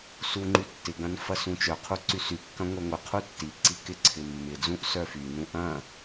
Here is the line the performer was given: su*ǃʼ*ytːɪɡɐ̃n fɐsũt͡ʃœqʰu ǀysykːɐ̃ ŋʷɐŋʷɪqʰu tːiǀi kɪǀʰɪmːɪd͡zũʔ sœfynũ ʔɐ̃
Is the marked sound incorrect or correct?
incorrect